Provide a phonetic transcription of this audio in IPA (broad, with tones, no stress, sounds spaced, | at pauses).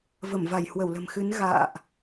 v ə˧˩ m v a˧˩ j h w ə˧˩ w l ə̤˨˩ m x ɨ˨˦ n ɣ a̰ː˧˨ ʔ